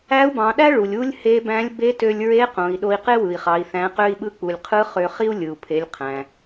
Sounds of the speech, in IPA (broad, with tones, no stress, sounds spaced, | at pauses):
æ˧˥ u̯ b ɑ̃˩˧ ɗ æ˥ ɭ u˩ lʲ u˥ lʲ h e˧˥ b æ̃˧˥ lʲ b e˧˥ t ø˧ lʲ ɹ e˧˥ q õ˩˧ i̯ ɗ o˧ i̯ q e˥ w ɯ˩ i̯ χ ɑ˩˧ i̯ θ æ̃˩˧ q ø˧ i̯ ɓ ɯ˧ k͡p u˩ lʲ qʰ ɯ˧˥ χ ø˧ χ i˥ u̯ lʲ ɯ˩ u̯ pʰ e˩˧ lʲ qʰ æ̃˩